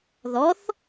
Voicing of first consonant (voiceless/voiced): voiced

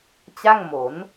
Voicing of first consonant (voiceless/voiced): voiceless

